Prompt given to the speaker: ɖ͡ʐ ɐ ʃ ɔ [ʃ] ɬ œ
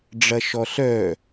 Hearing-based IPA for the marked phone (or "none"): none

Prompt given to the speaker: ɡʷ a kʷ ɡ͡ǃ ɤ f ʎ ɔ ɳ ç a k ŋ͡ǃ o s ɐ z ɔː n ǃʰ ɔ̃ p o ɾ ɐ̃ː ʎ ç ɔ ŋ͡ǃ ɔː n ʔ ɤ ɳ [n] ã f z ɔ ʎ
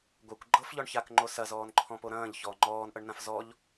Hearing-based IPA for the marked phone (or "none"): n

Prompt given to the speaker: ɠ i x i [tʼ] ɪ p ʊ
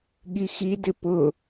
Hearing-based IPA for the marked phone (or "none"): d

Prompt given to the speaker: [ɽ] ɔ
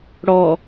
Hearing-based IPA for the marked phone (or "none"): ɽ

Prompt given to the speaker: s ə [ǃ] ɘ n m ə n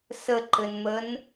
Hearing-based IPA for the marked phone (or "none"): ǃ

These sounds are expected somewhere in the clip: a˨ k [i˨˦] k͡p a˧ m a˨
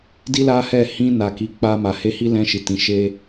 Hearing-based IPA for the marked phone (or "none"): i˨˦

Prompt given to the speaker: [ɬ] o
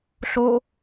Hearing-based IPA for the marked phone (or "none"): ɬ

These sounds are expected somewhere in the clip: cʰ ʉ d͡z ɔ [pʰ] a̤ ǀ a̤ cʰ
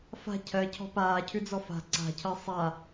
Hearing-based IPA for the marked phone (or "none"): f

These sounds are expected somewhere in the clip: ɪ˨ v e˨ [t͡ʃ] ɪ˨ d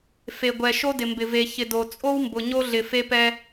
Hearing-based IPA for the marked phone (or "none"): ç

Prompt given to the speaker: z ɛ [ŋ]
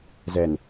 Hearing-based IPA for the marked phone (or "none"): n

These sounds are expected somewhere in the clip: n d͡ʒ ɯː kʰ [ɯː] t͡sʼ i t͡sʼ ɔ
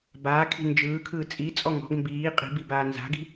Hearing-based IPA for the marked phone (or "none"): ɯː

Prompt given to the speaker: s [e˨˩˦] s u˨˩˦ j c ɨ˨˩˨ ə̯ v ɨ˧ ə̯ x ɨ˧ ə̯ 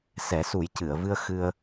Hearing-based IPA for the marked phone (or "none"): ɛ˨˩˦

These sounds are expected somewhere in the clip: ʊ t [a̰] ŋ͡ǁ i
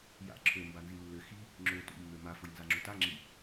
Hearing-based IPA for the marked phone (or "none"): a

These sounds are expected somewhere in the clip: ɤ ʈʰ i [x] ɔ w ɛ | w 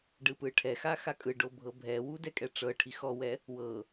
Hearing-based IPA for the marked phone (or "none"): x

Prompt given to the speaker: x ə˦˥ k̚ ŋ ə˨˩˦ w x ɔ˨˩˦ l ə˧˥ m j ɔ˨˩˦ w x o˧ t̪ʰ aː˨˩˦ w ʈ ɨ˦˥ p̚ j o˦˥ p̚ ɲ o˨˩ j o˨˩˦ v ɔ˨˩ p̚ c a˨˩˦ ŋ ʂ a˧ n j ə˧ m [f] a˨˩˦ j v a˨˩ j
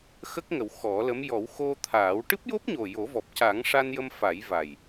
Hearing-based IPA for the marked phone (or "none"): f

